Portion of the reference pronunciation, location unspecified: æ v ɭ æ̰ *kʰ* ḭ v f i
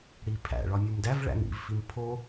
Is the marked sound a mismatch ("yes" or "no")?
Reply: yes